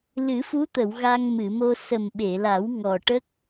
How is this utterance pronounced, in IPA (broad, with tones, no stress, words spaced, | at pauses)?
lɨ˨˩˦fu˧˥t̪ə˨˩˨w ɣa˧ŋmɨ˨˩˨mo˧ sə˨˩mɓe˨˩˨la˨˩˦w ŋɔ˨˩ʈə˦˥k̚